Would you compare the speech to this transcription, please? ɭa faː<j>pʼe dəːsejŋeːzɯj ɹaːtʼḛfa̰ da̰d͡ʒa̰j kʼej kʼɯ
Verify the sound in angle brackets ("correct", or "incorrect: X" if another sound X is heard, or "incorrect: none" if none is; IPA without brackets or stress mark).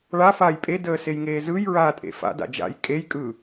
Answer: correct